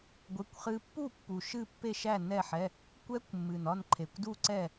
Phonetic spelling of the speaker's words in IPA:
ɡʷe˧˥˧kʷχɨ˦˥ pːu˥˨pːu˨˩ ʃɨ˥˨pːe˥˨ʃæ˥˨ nɛ˥˨ħɛ˧˥˧ | kʷɛ˦˥kʷmːɨ˨˩nɒ˥˨n ǃʰe˨˩kʷdu˥˨ǀɛ˥˨

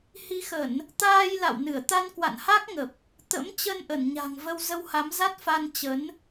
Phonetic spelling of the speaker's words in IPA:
hi˨˦xə˧˩˨n | t̪aː˧jla̰˧˨wnɨ˧˩ə̯ t̪a˧nkwa̰˧˨nha˦˥k̚ŋə˨˩p̚ | t̪ə̰˧˥m t͡ɕə˧nʔə˧˩nɲa̤˨˩ŋ və˧wzə˧wha˨˦mza˦˥t̚ fa˧n t͡ɕə˨˦n

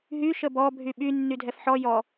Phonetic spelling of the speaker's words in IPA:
ɦy ʃəbɔ bʱyɓy nːydʱɛfħɔ jɔ

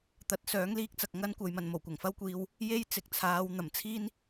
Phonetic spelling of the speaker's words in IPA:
t̪ɐ˨˥t̚ sœː˨˥ŋliː˥k̚t͡sɐ˨k̚ ŋɐ˥nkʷɐ˨jmɐ˨n mo˨˩wkʷɐ˨˩ŋfɐ˥wkʷiː˧w | je˥jt͡sɪ˨k̚t͡sʰaː˨˧w n̪ɐ˨˩mt͡sʰiː˥n

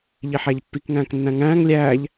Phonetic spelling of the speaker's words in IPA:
ʎiħæʎpːikŋæ̃ːk nːæ̃ŋæ̃ːŋ lʲæːʎ

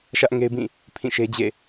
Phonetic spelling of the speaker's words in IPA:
ʃä˦ʔŋe˦ɪ̯bĩ˦˨ | pʰĩ˦˨ʃe˦d͡ʑḛ˦˨

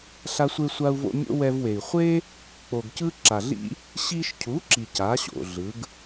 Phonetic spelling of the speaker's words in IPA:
ɬa˦sʷe˦sʷa˦u̯vo̰˦ mʲo̰˦wɛ˧vwe˨i̯ χʷe˦ | k͡po˨ɡcɯ˦ ǁa˨ɮḭ˦ | ɕi˧ʃcʰu˨˦ǁi˨ ca˨˦ɕo̰˨ ɮɯ˨˦ɡ

